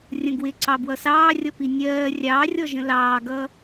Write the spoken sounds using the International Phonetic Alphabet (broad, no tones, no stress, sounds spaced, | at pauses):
rʲ ə̃ ɡ w ɪ ǀ ɑ b w ʌ s ɑː rʲ ʌ p i nʲ ɜː rʲ ɑː rʲ ɔ ʒ ə̃ l ɑː ɡ ʌ